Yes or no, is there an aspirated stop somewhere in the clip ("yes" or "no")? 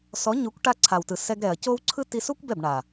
yes